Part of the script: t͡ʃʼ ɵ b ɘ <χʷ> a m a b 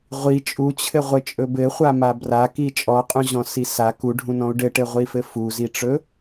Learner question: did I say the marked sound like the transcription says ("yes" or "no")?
yes